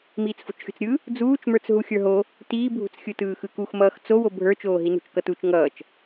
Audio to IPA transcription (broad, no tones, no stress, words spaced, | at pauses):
miːt͡sfo̤t͡ʃxʲṳt͡sɾʲɯ | d͡zuːt͡ʃmə˞t͡s ɦuxʲə˞ɦo | tiːbʱṳt͡sxʲɯtɯː xɯkuxmʌːx t͡sowo bʱə˞t͡ʃoːɦi nṳt͡ʃkʌtut͡ʃ ŋʌːt͡ʃ